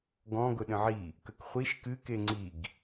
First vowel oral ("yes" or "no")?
no